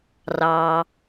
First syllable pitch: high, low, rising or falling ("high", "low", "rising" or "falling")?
low